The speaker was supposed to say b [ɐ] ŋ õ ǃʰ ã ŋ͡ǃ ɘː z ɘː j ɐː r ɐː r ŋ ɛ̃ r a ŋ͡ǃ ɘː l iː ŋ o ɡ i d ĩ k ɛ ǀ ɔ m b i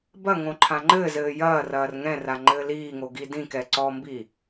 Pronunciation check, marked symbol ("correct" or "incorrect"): correct